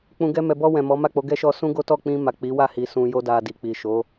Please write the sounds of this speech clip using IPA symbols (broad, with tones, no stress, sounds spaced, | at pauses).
k͡p ũ˨ ɡ ɛ˧ m ɛ˨ b ɔ˧ w ɛ̃˨ m ɔ˨˦ m a˦˨ k͡p o˨˦ ɡ ɛ˦ ʃ ɔ˧ s ũ˦ ɡ o˦ t ɔ˦˨ k͡p ĩ˧ m a˨ k͡p i˨˦ w a˦˨ h i˨ s ũ˧ j o˦ d a˧ d i˨ k͡p i˨ ʃ o˨˦